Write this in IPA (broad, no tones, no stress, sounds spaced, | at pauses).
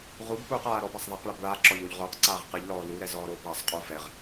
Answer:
ʁ u b p uː q aː ɾ ɔ b a sˤ ðˤ a q ɭ a b ɭ a ǁ ɔ ʎ o ʎ ʁ o q ǀ aː ʁ q ɨ ʎ l ɔː l u ɾ ɛ z ɔː ɾ oː b ɭ a sˤ qʼ u f ɛ ʁ